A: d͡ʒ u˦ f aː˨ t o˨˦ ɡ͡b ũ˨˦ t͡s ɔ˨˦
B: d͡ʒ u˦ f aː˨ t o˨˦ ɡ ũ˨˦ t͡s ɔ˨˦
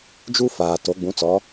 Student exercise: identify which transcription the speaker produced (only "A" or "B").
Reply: A